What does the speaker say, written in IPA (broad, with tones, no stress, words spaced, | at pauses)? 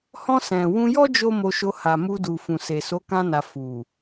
hɔ̃˧ sɛ̃˨ wũ˧jɔ˦ d͡ʒo˦mo˧ʃo˧ ha˨mu˧du˨ fũ˨se˨so˨˦ kã˧na˨ fu˨